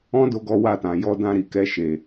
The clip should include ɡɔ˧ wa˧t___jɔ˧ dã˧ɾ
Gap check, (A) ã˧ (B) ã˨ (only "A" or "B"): B